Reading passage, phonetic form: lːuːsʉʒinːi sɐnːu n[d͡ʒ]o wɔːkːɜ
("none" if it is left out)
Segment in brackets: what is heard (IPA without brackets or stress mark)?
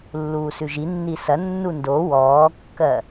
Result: d